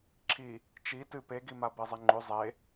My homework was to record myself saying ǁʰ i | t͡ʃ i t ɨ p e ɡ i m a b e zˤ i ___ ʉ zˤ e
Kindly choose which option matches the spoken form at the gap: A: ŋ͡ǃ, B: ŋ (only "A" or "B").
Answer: A